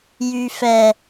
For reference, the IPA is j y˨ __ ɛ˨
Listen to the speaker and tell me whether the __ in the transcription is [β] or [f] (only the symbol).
f